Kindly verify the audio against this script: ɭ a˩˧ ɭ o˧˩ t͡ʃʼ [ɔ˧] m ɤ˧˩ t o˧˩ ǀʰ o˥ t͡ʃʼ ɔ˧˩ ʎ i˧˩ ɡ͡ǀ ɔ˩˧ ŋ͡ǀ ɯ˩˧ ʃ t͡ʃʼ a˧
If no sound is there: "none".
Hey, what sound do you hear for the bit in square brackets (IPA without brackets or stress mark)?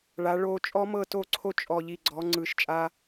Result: ɔ˧